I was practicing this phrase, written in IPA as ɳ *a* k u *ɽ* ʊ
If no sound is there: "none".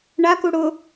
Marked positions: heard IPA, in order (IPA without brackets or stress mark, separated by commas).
a, ɽ